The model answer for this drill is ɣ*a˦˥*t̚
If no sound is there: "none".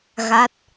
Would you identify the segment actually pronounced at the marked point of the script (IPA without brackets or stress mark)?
a˦˥